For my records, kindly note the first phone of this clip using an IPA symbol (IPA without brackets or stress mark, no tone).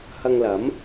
h